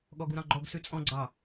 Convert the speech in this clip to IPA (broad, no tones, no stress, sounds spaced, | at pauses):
ɠ ɔ ɡ u ɾ ɑ̃ ɡ͡ǃ ɔ ɡ s ʉ t͡sʼ ɔ̃ ɡ͡ǀ ɑ